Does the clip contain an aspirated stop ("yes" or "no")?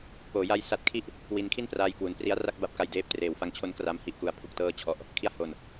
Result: yes